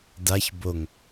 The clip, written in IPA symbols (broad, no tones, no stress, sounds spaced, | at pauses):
d a ç b o ŋ